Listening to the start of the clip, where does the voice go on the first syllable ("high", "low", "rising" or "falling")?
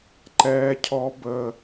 low